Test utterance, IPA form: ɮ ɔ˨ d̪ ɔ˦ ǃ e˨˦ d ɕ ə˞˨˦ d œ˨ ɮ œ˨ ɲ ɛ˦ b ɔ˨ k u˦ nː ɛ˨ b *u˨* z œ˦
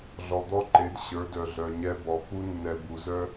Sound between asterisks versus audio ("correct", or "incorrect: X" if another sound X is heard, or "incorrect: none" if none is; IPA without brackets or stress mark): correct